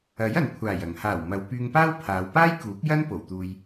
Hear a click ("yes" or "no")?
no